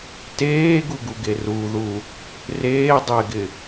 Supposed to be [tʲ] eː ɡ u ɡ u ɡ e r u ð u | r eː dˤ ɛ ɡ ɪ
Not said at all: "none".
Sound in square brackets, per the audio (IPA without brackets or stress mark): t